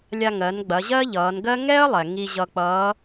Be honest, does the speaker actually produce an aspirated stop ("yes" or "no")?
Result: no